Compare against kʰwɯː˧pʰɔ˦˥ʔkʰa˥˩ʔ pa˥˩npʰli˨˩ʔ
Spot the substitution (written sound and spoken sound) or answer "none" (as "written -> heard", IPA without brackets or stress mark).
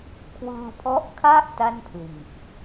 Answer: p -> t